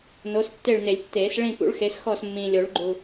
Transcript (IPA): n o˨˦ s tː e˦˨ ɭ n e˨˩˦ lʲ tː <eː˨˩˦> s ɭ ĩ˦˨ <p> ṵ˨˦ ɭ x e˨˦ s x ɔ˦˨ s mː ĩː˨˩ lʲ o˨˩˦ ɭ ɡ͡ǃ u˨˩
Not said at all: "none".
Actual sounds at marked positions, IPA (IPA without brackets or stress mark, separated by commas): eː˨˩˦, p